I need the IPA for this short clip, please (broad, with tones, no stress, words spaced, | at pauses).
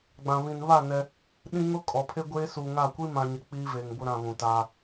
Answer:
ɡ͡bã˨βĩ˨n βa˦˨ nɛ˦ | ɗĩ˦ ŋʊ˦kʼɔ˨pʰe˦ɡʷeː˦ suː˨ŋa˦˨ kʷi˦mã˨ɲɪ˨ k͡piː˦ve˨ŋbʊ˦ɾã˨ βũ˨taː˦